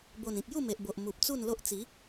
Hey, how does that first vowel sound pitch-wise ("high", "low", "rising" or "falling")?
low